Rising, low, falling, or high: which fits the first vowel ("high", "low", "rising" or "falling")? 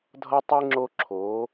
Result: high